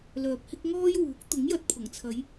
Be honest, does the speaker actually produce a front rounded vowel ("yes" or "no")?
yes